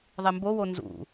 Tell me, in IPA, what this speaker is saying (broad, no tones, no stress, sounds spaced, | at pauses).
ðˤ i m b o w o n z ṵ